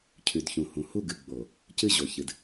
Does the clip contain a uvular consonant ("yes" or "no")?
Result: no